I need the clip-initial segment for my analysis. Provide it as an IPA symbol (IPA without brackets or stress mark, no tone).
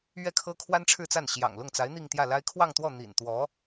ɥ